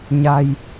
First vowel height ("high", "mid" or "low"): low